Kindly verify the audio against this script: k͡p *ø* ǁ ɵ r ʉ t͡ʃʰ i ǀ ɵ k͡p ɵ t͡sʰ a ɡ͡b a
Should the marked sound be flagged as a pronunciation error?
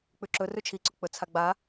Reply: yes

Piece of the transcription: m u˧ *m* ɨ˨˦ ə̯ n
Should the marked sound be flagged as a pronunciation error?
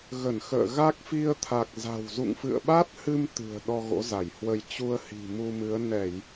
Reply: no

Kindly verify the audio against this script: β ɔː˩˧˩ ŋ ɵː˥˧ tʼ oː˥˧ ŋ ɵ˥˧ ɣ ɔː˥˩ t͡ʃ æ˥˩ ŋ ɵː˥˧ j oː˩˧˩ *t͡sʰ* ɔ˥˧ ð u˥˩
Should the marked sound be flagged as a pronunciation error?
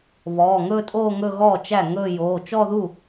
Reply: yes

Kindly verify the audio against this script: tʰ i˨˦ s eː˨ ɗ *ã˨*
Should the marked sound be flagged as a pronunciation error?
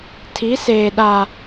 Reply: yes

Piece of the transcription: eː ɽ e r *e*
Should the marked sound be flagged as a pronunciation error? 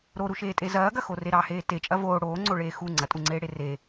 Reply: no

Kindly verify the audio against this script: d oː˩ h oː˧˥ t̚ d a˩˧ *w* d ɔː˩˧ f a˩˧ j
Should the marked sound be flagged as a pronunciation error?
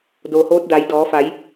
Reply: yes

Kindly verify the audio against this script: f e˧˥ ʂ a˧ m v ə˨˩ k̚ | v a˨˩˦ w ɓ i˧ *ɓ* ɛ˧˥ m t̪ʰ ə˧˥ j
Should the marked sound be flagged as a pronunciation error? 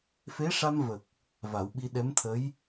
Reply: yes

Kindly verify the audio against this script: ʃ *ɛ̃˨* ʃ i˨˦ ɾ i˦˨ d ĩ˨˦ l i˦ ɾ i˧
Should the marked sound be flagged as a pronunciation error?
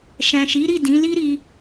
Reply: no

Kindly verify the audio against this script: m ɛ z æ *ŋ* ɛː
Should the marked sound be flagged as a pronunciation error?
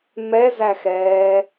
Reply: yes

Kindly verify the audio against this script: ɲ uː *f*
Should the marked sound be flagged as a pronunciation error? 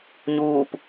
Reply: yes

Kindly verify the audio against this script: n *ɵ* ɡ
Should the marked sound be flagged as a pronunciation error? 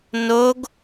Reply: yes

